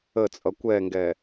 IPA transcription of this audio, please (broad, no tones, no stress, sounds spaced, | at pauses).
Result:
ə t͡sʼ ʌ kʷ ɛ ŋ ɡ ɛ